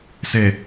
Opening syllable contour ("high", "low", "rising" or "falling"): low